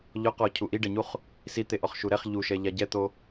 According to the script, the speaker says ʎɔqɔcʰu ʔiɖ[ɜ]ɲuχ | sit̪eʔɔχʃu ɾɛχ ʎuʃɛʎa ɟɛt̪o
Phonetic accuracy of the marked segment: incorrect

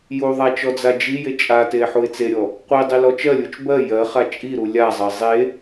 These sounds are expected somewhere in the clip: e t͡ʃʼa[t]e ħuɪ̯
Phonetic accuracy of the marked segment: correct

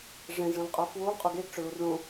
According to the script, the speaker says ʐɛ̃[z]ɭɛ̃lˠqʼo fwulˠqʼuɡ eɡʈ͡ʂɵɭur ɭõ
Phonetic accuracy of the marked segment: correct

